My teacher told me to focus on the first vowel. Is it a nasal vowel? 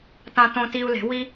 yes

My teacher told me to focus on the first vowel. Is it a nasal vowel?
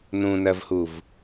yes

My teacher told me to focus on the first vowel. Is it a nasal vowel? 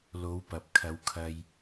no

